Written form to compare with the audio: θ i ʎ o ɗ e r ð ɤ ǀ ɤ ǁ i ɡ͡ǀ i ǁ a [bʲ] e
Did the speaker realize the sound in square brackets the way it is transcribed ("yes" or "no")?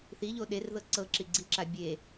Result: yes